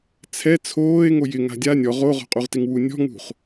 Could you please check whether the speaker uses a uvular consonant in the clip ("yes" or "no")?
yes